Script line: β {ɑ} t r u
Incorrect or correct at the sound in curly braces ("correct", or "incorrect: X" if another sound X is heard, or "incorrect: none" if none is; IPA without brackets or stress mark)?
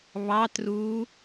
correct